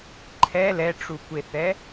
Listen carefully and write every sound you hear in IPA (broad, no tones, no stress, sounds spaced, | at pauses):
ǃʰ ɛ l ɛ ʈ͡ʂ u kʷ e θ ɛ